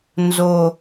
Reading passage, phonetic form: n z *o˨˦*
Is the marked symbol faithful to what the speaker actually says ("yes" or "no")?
no